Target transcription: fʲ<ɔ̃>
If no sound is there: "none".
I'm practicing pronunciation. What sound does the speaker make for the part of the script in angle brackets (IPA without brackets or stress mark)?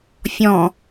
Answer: ɔ̃